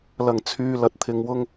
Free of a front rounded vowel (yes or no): no